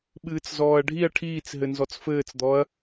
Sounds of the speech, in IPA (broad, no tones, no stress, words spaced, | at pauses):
ɓɨːt͡szɔːɐ̯ɖʱiɐ̯ ʈʰiːt͡s ɦɘnzɔt͡sfɘːt͡sd̪ɔɐ̯